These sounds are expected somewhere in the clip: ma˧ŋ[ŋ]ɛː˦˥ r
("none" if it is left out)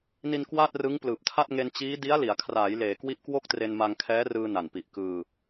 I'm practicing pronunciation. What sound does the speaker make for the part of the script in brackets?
kʰ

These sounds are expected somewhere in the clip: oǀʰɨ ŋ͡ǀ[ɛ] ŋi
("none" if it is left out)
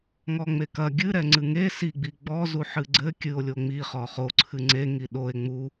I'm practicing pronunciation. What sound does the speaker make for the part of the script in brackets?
e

